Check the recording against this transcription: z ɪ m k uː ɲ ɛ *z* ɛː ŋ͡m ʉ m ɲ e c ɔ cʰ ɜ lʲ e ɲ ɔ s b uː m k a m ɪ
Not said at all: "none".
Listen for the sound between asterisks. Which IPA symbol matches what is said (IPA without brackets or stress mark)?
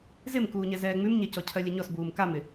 z